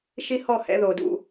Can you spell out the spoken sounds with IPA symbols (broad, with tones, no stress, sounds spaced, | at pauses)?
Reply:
ʃ i˦ h ɔ˦˨ h ɛ̰˧ ð o˨ d ṵ˧